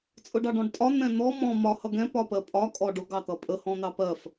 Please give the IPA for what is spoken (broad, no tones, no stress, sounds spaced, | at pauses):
t͡sʼ ʊ ɖ ɑ ɖ ɔ̃ ɖ tʼ ɒ n̪ ɛ̃ n̪ ɔ m ɔ̃ m ɒ h ʌ ɡ ɛ̃ p ɒ p ɜ pʼ ɒ kʼ ɔ ɖ ʊ ɡ ɑ t̪ ʌ pʼ ə h ɔ̃ n̪ ɑ p ɜ f